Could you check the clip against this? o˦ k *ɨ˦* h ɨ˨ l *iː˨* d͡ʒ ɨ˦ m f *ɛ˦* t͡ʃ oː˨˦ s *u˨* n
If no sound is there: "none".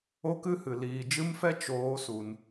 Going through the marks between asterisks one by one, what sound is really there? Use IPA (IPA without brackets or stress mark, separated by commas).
ɨ˦, iː˨, ɛ˦, u˨